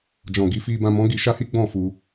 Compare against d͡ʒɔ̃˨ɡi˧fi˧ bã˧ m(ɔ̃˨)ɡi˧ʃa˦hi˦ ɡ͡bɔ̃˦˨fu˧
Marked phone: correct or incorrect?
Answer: incorrect: ɔ̃˦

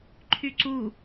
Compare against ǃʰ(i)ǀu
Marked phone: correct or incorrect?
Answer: incorrect: y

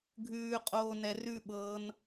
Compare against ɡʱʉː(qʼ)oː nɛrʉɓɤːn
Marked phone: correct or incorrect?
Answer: correct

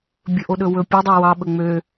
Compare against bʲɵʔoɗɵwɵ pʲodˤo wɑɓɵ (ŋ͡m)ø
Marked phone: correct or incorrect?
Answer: correct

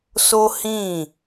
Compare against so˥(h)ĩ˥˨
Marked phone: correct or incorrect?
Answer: correct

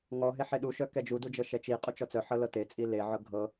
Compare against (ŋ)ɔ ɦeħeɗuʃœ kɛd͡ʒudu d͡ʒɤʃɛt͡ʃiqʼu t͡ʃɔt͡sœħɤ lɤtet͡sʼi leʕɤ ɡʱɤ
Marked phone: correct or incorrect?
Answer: correct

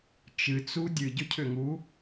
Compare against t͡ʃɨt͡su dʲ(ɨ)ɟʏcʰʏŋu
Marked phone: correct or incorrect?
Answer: correct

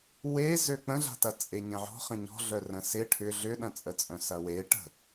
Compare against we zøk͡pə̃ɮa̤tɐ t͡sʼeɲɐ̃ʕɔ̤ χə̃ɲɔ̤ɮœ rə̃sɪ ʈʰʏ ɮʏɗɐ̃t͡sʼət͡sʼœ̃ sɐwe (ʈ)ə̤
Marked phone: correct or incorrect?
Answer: correct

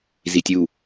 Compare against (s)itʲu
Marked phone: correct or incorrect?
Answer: incorrect: z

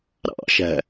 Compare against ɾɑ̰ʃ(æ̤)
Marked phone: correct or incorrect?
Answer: correct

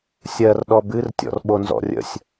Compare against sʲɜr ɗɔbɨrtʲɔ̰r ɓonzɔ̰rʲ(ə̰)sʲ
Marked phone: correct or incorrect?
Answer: correct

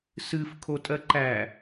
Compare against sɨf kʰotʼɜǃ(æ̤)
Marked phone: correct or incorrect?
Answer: incorrect: æ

